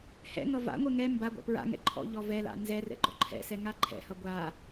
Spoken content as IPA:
h ɛ̰ ŋ ʌ v a̰ ŋʷ ɛ ŋ ɛ m b a ɡʷ a̰ p ɹ a̰ ŋ ɛ̰ ǃʰ ɔ̰ ʎ ɔ v ɛ l a̰ n z ɛ r ɛ̰ ɡ͡ǃ ɔ̰ ǃʰ ɛ̰ s ɛ ŋ a ǃʰ ɛ̰ h ʌ ɡʷ a

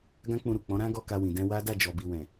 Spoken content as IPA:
ɡ ã˦ k͡p ũ˧ ɾ u˨ k͡p ɔ̃˨˦ ɾ ã˦ ɡ ɔ˦ k a˧ w ĩ˨ d ɛ̃˧ w a˦ d a˦˨ d͡ʒ ɔ˨ b i˨ w ɛ̃˨

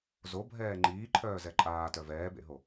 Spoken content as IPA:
z o bʱ ɛː ŋ͡ǃ iː ǃʰ œː z ɛ ǃʼ aː t œ v ɛː b ḛ ɦ o

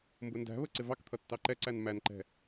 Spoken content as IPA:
m b ʊ n d æ̤ β ə ǀ ɪ v ɑ k t̪ʰ ʌ tː ɑ ǃ ɛ ǀ æ n m æ n ǃ ɛ̤

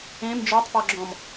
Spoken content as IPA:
ẽ m d͡ʒ ɔ tˤ p ɔ ɡ͡ǁ ɔ̃ m

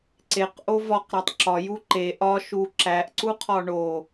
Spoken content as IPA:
ǀ e q ʔ o v ɒ q ɾ æ tˤ ǁ ɒ j u ǃ e ʔ ɒ ʃ u ǁ æ ʔ ǀ u qʰ ɒ ɳ o

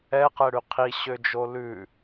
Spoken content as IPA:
ɛ q ɛ ɽ y qʰ i ɕ ø d͡ʒ o l ʉ

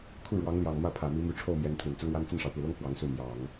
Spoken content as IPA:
kʰ u˥˩ ɻ w ɑ˧˥ ŋ l j ɑ˨˩ ŋ m ä˥˩ pʰ ä˨˩ m i˧˥ m y˧˥ ʈ͡ʂʰ o˥˩ ʊ̯ m j ɛ˧˥ n t̪ʰ i˨˩ n t͡s ʊ˥ ŋ w a˥ n t͡s ə˥˩ n ʂ ɑ˩ ʊ̯ p i˨˩ l ʊ˥ ŋ f w ɑ˧˥ ŋ s u˥˩ m j ɑ˨˩˦ ŋ

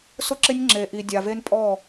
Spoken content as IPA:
s ʊ˦ ǁ ɪ˦ nʲ ŋ͡ǁ e˨ ʔ i˨ dʲ a˨ v e˦ n pʼ ɔ˦˨

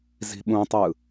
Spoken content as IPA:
z i̤ ɓ ũ tˤ ɯ

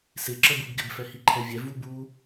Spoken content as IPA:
s ɪ ǁ ə b u b ɡ ɪ b f ɛ h i ǃʰ ɛ vʲ ɛ v u b u

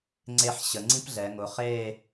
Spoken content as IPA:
ŋ͡ǀ e˧ ħ ɕ ə˩˧ ŋ͡ǀ ĩ˥ p ɮ ɛ˩˧ ŋ ʊ˩˧ χ eː˥˧

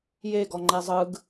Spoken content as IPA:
j e ɡ ɔ ŋ͡ǃ ɛ zˤ ɯ ɡ

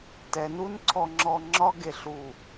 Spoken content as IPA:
t ɛ˨ n u˦ n ǀʰ ɔ˧ ŋ͡ǁ ɔ˧ ŋ͡ǁ ɒ˦ ɡ e˦˨ ɬ u˦˨

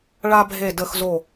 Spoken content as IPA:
ɭ a˦ bʱ e˧˩ d ə˧˩ x z o˧˩

